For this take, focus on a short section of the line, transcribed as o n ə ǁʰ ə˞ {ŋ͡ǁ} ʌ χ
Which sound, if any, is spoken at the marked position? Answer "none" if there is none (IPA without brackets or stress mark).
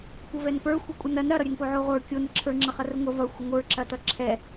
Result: ŋ͡ǁ